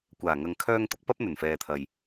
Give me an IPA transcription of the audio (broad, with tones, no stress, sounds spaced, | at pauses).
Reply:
kʷ aː˨˩ ŋ ɐ˨ ŋ kʰ œː˧ ŋ t̪ ʊ˨˥ k̚ p ɐ˥ p̚ n̪ ɵ˨˩ n f ɛː˨ t̪ʰ ɐ˨ j